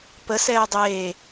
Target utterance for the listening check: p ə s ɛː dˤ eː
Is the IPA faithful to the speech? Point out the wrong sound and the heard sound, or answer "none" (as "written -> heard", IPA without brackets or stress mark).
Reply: none